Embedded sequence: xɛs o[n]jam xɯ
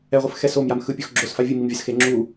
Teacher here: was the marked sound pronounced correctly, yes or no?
no